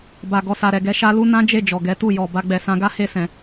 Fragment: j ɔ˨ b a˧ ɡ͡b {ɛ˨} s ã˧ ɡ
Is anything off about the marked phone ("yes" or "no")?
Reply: no